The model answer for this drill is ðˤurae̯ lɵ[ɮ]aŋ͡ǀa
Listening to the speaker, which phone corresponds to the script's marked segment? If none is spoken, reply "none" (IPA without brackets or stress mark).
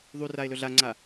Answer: ɮ